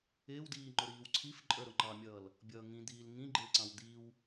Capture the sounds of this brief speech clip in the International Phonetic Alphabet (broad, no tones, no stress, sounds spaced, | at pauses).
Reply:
ɪː w d iː ŋ͡ǃ ʊ ɾ iː w ǀʰ i f ǃʼ ə˞ ɾ ʊ ŋ͡ǃ ɑ mʲ ʌː l | bʲ ʌː ŋ ĩ d̪ iː l ŋ ĩ ɡ͡ǃ ɪː ǀ ɑ̃ w d̪ i w